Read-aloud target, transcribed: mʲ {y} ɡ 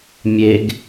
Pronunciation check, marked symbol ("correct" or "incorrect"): incorrect